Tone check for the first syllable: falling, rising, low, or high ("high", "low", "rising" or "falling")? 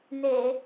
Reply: low